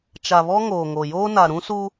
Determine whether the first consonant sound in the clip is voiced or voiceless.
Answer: voiceless